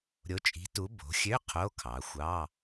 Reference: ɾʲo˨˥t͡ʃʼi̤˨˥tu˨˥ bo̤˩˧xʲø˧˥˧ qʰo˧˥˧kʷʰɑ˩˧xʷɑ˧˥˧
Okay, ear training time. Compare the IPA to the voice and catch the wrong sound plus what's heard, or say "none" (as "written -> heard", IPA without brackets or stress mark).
kʷʰ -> kʰ